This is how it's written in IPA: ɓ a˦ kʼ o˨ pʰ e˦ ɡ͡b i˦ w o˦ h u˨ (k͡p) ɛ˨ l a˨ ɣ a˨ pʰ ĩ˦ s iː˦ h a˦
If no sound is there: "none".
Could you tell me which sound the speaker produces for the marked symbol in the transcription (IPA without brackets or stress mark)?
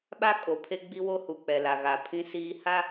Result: k͡p